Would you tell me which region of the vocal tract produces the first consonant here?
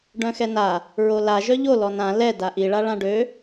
retroflex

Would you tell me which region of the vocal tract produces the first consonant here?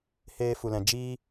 throat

